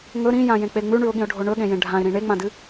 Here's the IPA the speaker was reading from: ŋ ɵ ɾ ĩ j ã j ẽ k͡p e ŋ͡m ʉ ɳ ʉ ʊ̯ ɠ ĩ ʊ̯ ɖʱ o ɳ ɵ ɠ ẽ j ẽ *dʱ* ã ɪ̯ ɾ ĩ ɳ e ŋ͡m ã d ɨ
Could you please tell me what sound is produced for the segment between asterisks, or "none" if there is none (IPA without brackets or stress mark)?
ɖʱ